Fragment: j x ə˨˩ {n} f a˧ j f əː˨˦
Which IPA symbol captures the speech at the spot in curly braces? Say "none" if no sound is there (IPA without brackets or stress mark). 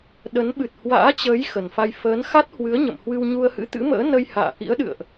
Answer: n